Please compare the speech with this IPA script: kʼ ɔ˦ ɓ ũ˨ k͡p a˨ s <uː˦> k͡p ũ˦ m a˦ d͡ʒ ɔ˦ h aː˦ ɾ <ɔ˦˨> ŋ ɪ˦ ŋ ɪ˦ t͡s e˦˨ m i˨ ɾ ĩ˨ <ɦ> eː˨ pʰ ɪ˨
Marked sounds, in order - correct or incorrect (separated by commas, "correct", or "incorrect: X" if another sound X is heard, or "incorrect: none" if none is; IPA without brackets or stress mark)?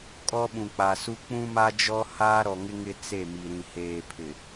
incorrect: u˦, incorrect: ɔ˨, incorrect: h